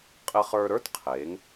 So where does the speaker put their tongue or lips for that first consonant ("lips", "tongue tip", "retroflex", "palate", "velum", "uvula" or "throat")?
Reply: uvula